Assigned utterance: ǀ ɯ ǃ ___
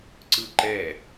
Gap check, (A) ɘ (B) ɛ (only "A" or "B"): B